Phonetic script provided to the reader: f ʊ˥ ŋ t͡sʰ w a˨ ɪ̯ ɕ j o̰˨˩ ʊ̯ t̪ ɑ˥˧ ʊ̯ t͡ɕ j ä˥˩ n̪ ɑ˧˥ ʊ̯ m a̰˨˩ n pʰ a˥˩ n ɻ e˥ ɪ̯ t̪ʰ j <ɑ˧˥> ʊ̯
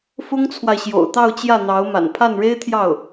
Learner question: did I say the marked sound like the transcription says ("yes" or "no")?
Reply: no